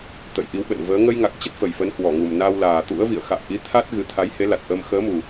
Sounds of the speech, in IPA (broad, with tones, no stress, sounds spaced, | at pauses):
t̪ ə̰˧˨ j ʔ i˨˦ w ɓ ə̰˧˨ n v əː˨˦ ŋ ə˧ j ŋ a˨˩ k̚ t͡ɕ ə˦˥ t̚ f ə˨˩ j f ə˨˦ n h w ɔ˧˩ ŋ u˨˩ m n a˧ w l aː˨˩ t̪ ṵ˧˥ ə̯ v ḭ˧˨ ə̯ x a̰ː˧˨ ʔ i˨˦ t̪ʰ a˦˥ t̚ ɣ ɨ˨˦ t̪ʰ a˨˦ j h e˨˦ l a˨˩ t̚ ʔ əː˧ m x əː˨˦ m u˨˩